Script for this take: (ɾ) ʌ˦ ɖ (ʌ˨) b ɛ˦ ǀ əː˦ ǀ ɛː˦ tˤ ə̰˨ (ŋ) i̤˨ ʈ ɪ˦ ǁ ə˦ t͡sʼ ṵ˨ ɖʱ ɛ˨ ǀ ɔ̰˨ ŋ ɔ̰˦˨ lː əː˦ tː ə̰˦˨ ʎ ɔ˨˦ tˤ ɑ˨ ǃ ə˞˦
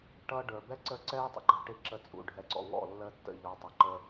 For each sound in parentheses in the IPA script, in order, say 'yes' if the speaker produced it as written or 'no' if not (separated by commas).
no, no, no